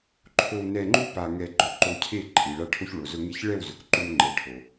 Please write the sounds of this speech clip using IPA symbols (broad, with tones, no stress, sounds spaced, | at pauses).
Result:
ǃʰ o˧ w n ɛ˧ ŋ͡ǃ u˦ p a˧ ŋ ɛ˧ ɡ͡ǃ ʊ˧ ǃ o˧ cʰ e˦˨ ǃʼ i˨ ɭ a˧ ʈʰ o˧ ç ɭ o˨ z ʊ˧ ŋ e˧ ç ɭ ɛ˦˨ w z ʊ˨ k ǃ u˧ n ŋ͡ǃ ɛ˨ ʈʰ o˨